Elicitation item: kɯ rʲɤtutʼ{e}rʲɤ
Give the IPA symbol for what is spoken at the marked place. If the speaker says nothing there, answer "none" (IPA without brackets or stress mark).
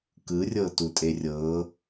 e